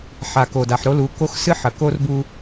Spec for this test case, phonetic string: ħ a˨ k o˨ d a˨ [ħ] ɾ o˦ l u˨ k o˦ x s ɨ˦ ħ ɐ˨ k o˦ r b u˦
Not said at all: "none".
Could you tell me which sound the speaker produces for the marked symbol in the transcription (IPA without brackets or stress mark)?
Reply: ħ